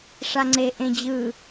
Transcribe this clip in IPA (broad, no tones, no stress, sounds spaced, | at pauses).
ʂ a ŋ͡ǀ e ʔ ẽ d͡ʑ ɯ